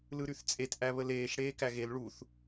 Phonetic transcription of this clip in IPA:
lɯɾyθt͡sʼet ʔæβəleːʃ ɽeːkæɣel ɭuθ

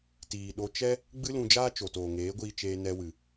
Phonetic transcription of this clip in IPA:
tiː˨ɗo˧ t͡ʃɛ˦ | ɡ͡bɨ˦lũ˧d͡ʒaː˦ t͡ʃo˨toː˨ŋeː˨˦ ɡʷiː˧t͡ʃeː˧nɛ˧wɨ˨

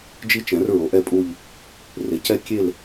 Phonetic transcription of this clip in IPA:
d͡ʒi˦˥t͡ʃɛ̃˩˥r ɹo˩˥ʔɛ˦˨pʼu˦˨ʎ | re˩˥cɛ˦˥ kʲe˦˨l

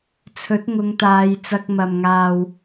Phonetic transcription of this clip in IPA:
t͡sʰɵ˨˥t̚ŋʊ˨˧ŋt̪aː˨˧j t͡sɐ˧k̚mɐ˨m ŋaː˨w

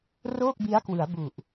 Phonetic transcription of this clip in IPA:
roː˥˩k̚bi˦˥a̯kwɯ˩˦a̯ bu˨˩ʔ

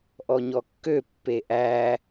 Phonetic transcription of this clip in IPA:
ʔɔɲɔkːø pːeʔæ

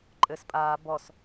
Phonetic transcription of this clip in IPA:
ǃʼɘs pʼaː bɔs

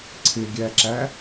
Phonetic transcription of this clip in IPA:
ǀʰɪɡʲæǁæ

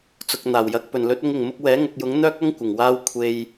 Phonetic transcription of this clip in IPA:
t͡sʊ˨k̚ n̪aː˨˩wjɐ˨˥k̚ pɵ˨˩nlɵ˨˥t̚ʊ˧ŋ ɪ˨˩ŋmʊ˧k̚wɛː˨˥ ŋʊ˨k̚jʊ˨˥ŋ n̪œː˥k̚ɐ˥ŋ kʷɪ˨˩ŋwaː˧w kʷʰe˨j

